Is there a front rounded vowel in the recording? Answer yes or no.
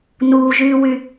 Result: yes